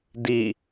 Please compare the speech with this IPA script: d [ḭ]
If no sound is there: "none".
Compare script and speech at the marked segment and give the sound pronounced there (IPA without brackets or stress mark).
i